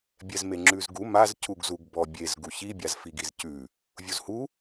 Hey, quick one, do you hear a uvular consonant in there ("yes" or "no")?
no